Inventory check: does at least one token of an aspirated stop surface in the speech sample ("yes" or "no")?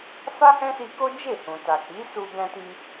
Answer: no